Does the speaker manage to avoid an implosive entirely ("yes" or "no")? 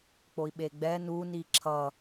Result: no